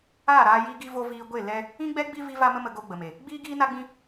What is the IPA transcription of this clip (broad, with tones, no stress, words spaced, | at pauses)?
aː˦˨ɾaː˧ ji˦ɡi˦ vo˧ viː˧ɡʷe˦˨ lɛ˦ | ĩ˦ɡ͡bɛ˦ɡ͡bi˦ vi˦va˦mə˦mə˧ ɡo˧ ɡ͡bə˨me˨ | ɡ͡biː˦ɡiː˦ na˦ɡ͡bĩ˦